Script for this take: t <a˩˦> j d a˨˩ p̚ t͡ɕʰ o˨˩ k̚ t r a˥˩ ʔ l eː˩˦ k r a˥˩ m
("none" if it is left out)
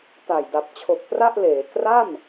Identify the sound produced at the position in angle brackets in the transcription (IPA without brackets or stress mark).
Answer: a˨˩